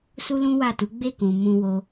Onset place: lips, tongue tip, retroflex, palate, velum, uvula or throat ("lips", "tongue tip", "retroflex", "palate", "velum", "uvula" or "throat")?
tongue tip